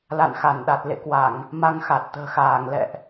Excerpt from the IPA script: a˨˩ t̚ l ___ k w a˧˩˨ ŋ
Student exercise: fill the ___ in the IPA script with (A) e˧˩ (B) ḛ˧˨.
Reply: B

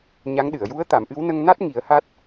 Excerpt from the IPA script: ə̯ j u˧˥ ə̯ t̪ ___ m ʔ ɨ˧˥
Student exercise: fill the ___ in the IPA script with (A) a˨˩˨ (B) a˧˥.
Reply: A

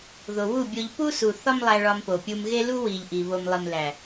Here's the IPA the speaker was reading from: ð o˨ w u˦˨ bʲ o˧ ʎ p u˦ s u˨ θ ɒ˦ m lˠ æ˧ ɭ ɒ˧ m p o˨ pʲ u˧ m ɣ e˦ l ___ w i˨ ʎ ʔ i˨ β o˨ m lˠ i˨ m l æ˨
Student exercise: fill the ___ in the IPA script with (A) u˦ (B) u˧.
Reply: A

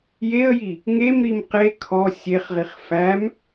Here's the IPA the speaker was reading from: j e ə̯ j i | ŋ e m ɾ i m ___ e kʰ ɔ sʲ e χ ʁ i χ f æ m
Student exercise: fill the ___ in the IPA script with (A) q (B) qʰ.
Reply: A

